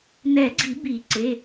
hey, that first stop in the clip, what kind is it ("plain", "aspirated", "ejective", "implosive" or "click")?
click